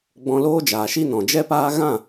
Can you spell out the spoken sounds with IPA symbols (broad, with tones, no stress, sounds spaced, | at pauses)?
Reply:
ɡ͡b ɔ̃˧ l oː˦ d͡ʒ aː˨ ʃ i˦ n ɔ̃˨ d͡ʒ ɛ˦ p aː˦ ɣ ã˦˨